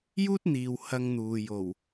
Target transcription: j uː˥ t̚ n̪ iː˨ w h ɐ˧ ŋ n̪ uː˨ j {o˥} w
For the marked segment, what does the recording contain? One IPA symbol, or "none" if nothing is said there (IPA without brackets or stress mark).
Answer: o˨˩